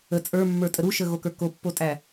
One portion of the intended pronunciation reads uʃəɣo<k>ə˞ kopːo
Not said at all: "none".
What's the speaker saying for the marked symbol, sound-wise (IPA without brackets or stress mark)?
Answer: k